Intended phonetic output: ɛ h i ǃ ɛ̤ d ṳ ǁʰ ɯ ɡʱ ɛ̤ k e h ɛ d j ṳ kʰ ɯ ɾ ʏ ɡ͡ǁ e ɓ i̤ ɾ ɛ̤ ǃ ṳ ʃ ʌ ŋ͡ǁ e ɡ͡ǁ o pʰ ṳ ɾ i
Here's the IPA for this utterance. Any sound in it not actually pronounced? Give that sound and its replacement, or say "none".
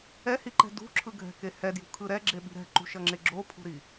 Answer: ʏ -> ɛ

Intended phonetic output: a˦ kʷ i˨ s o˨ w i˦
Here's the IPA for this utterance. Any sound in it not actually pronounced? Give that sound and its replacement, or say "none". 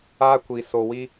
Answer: none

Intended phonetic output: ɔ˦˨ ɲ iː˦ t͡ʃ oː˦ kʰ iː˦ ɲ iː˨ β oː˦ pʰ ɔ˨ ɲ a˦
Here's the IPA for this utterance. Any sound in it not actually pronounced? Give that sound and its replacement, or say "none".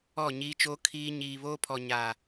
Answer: a˦ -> a˨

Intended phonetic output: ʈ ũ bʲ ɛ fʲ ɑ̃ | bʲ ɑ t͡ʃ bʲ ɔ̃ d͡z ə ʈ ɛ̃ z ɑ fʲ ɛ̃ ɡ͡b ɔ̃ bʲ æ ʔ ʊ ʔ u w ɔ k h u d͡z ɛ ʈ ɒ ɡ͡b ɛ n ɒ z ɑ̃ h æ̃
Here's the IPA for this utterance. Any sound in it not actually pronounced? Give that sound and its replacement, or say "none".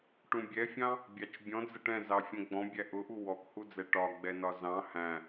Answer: none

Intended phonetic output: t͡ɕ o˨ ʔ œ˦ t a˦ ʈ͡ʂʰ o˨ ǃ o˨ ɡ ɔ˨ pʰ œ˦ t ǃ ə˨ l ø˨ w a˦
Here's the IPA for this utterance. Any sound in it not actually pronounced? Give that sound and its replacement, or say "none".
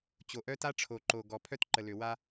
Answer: none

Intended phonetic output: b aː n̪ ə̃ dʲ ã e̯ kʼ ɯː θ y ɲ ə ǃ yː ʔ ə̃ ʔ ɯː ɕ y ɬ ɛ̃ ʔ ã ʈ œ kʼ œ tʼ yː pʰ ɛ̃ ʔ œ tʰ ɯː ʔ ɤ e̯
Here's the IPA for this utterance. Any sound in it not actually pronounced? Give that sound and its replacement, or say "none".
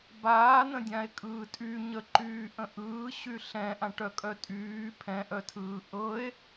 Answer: θ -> tʼ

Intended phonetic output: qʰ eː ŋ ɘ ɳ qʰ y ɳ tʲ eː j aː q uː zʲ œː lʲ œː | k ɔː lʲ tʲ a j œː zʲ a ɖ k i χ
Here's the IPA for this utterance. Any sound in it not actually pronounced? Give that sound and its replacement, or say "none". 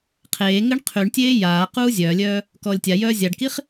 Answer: none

